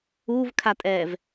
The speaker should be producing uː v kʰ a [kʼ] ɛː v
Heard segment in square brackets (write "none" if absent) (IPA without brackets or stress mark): tʼ